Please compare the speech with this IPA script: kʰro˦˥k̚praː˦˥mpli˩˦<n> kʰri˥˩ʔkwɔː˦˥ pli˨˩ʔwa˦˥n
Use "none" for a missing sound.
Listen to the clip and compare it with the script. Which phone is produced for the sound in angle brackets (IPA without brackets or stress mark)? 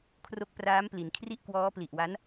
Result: n